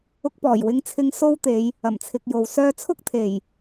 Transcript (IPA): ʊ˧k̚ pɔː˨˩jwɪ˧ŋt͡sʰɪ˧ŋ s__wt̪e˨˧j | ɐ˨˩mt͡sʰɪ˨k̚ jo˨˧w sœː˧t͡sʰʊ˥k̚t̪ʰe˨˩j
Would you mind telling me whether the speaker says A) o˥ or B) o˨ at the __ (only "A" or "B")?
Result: A